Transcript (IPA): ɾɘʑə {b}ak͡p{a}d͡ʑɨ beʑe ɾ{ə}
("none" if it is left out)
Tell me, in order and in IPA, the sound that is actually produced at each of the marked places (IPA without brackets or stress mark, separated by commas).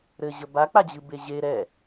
b, a, ɛ